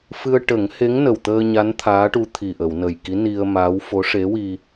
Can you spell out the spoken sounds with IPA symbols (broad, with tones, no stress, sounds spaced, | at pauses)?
f ɨ˧ ə̯ ʈ ə˨˩˦ ŋ h e˧˥ ŋ n ə˨˩ w t̪ əː˧ ɲ a˧˥ n t̪ʰ aː˧˥ ʈ u˧ t̪ʰ i˨˩ ʔ ə˨˩˨ w n ə˨˩ j k i˧˥ n i˧ ə̯ m aː˧˥ w f o˧˥ ʂ e˧˥ w i˧